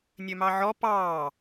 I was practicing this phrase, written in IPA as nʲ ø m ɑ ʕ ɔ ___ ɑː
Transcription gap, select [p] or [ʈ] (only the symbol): p